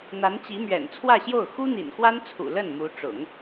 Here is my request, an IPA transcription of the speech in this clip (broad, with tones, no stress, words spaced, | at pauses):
n̪a˧˥nt͡ɕi˧˥mɥɛ̰˨˩n t͡sʰwä˥˧ɕjo˥˩ʊ̯ xu˥ n̪ḭ˨˩nxwa˥nt͡sʰṵ˨˩ lə˥˩nmu˧˥ʈ͡ʂʊ̰˨˩˦ŋ